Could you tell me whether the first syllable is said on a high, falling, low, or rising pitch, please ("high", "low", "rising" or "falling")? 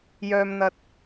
low